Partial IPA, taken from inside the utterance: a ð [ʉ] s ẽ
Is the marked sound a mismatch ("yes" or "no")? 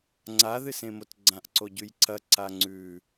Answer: yes